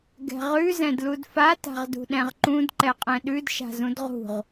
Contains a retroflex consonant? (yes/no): no